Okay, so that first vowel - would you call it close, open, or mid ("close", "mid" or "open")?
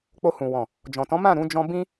mid